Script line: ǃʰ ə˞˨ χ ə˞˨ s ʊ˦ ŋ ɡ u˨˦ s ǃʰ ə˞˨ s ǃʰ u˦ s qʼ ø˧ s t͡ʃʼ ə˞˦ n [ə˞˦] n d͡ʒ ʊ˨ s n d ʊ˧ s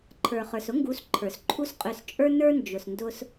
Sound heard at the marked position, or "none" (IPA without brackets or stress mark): ə˞˦